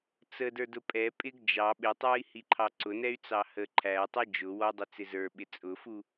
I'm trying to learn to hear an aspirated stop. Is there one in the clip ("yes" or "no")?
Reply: yes